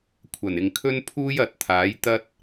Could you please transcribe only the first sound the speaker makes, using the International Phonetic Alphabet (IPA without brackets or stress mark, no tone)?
kʷʰ